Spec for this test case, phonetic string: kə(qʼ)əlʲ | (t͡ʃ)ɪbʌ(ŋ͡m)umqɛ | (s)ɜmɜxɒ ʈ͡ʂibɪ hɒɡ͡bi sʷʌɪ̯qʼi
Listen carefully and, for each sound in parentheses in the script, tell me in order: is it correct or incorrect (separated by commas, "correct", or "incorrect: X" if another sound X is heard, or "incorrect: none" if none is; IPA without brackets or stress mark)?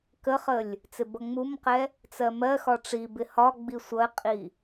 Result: incorrect: χ, incorrect: t͡s, correct, incorrect: t͡s